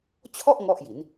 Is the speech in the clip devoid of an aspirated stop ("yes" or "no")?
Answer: no